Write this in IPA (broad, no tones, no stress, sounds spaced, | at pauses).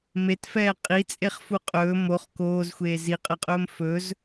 m e t f ɛː qʼ i t͡sʼ e χ f u qʼ ɵː m o χ k oː z xʷ eː z i qʼ ə qʼ ɵː m f ɵ z